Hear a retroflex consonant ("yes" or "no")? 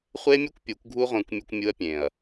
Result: no